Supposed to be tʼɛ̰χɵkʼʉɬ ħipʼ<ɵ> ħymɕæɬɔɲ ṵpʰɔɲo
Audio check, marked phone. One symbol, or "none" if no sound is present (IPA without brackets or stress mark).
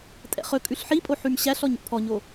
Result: o